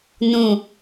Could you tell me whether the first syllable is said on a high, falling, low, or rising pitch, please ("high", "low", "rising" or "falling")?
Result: low